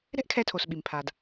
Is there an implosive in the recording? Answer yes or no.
yes